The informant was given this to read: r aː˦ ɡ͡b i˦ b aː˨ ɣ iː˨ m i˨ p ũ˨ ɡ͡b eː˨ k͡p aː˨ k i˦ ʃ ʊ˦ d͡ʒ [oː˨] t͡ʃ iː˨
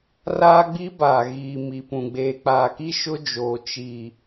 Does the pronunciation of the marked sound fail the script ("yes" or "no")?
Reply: no